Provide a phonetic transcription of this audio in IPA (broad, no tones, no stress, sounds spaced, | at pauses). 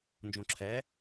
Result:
n d͡ʒ õ ǁʰ ɛ